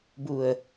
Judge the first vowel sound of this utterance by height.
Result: high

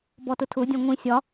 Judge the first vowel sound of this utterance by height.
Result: mid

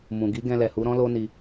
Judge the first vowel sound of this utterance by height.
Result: high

